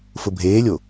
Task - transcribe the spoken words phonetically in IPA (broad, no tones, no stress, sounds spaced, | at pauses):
f ʊ bʱ eː lʲ o